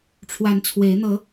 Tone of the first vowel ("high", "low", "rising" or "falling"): rising